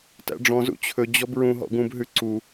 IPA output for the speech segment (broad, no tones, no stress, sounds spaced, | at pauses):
t æ̰ ɖ͡ʐ ɔ̃ z ṵ t͡ɕʰ ɵ d͡ʑ ɔ b ɹ ũ ɦ ɔ̰ ɡ ũ b ɦ ʉ ǀ u